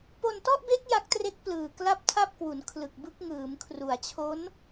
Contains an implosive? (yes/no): no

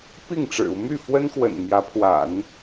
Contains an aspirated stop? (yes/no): yes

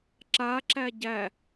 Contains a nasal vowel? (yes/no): no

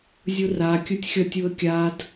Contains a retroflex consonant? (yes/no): no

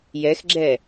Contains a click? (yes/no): yes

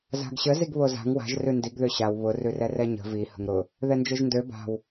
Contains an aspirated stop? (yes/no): no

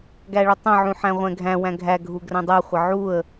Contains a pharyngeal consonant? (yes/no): yes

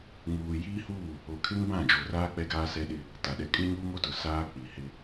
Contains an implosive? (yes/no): yes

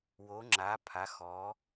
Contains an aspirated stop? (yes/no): yes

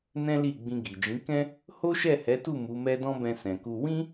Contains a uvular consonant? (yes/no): no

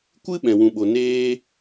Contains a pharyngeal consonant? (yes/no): no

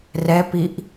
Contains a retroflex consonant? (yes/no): no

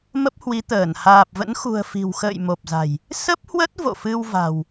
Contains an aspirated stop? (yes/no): no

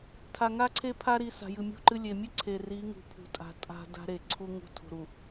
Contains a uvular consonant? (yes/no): no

